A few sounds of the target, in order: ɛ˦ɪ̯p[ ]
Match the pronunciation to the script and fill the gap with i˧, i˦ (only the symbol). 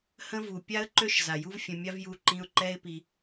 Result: i˧